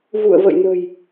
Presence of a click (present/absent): absent